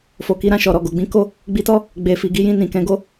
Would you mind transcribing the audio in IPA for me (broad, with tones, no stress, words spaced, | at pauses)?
fo˨ki˨˦ ɾã˦˨ʃɔ˨ɾɔ˨ɡo˨ ɡ͡bĩ˨˦ko˦˨ | ɡ͡bi˧tɔ˦ | ɡ͡be˨fi˨ ɡi˨˦jĩ˧ nĩ˨kɛ̃˨˦ɡo˦